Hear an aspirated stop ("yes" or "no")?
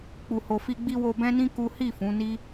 no